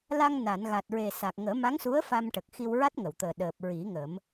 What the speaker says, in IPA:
l a˧ ŋ n a˨˩˨ n ɣ a˨˩ t̚ ɹ e˨˩ s a˨˩ k̚ ŋ əː˨˩˦ m a˧˥ ŋ s u˧˥ ə̯ f a˧ m ʈ ə˨˩ k̚ x i˧ w ɹ a˦˥ t̚ ŋ ə˨˩˨ w t̪ əː˨˩ ɗ əː˨˩ p̚ ɹ i˨˩˦ ŋ ə˨˩˦ m

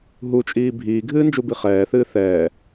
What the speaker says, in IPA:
ɦ u t͡ʃʼ iː bʱ iː ɡʱ ɨː n d͡ʒ u b i χ ɛː θ ɨː θ ɛː

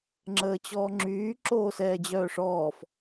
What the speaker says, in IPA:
ŋ͡ǁ əː t͡ɕ ɔː ŋ͡ǁ yː ǁ oː s ɛː d͡ʑ œː ʂ ɔː f

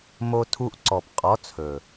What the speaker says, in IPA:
m o˧ tʰ u˧ ʔ ǀ ɔ˨ p qʼ ɔ˨˦ t͡sʰ ɵ˨

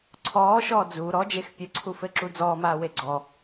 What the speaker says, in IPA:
ǀʰ ɔː ʃ ɔː d͡z u ɾ ɔ d͡ʒ e x pʲ ə ǀʰ u f ɘ ǁ u d͡z ɔː m aː w e ɡ͡ǀ ɔ

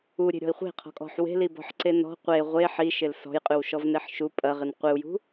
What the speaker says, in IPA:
u ɾʲ e̤ ɾʲ ɔ̤ i̯ χʷ e̤ qʰ ɔ̤ kʼ ɔ̤ ħ w e̤ l i b ɔ̤ ħ ǀ e n ɔ̤ qʷ e ʁʷ e ħ i ʃ ɪ l s ɔ̤ j qʼ ʉ w ʃ ɔ v n e ħ ʃ u pʼ ɐ ʁ ɪ n qʷ ɪ u̯ j ṳ

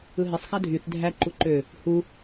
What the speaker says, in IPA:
ɯ ɦ e sˤ x æ dʱ y θ dʱ æ ǃ u ǃ ø | h u

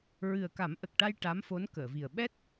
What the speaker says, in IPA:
ɹ ɨ˨˩ ə̯ k a˨˩˦ m ʔ ə˨˩ k̚ ʈ a˧ j ʈ a˧˥ m f o˧˥ n k əː˨˩˨ v i˨˩ ə̯ ɓ ɛ˦˥ t̚

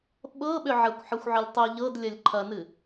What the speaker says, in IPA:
ɓ ɤ ɓ ʏ ʕ ɐ kʷ ħ ɤ xʷ ʕ ə lʲ tˤ ɛ ʎ ɤ d lʲ ɐ lʲ ǃʰ ɐ n ɨ

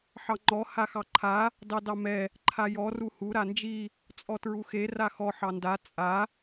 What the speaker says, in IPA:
ħ ɑ ŋ͡ǃ ɔ h a x ɑ ǃʰ a | d ɑ d ɑ m ɛ | ǃʰ a j ɔ r u h u ɾ a n d͡ʒ i | t͡sʼ ɔ t ɹ u x e r a x ɔ ħ ɑ n d a t͡sʼ a

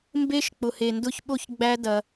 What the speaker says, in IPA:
m b e˧ ʃ k͡p ʊ˨ h e˨ n d ʊ˧ ç ɓ o˧ ç ɡ͡b æ˧ d ɐ˧

